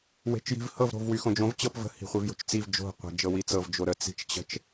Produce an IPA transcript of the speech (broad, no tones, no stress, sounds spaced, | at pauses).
w e̤ t͡ʃ j i̤ v h ɤ v ɾ o̤ v w y x õ d͡ʒ õ v t͡ɕ ɤ p v ə̤ h i̤ χʷ i v j o̤ t͡ʃ t͡s i v d͡ʒ o̤ qʷ ə̤ d͡ʒ ɤ w i t͡s ɤ v d͡ʒ o ɾ ə t͡s i̤ t͡ʃ t͡ɕ ə̤ t͡ʃ